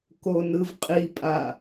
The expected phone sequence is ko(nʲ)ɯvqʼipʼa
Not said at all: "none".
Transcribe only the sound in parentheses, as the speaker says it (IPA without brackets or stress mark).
n